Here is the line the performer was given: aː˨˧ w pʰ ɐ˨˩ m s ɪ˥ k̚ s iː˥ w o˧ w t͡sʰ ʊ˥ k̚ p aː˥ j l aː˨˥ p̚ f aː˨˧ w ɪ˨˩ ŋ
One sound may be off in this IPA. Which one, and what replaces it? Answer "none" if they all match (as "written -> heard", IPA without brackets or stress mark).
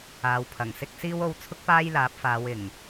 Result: m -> ŋ